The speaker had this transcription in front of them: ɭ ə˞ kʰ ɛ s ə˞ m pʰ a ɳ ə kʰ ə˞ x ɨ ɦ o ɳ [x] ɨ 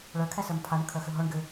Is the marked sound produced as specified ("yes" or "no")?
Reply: no